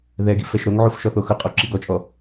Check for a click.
present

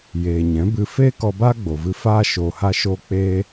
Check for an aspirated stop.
absent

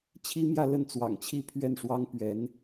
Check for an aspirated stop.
present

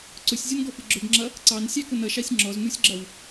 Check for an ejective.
absent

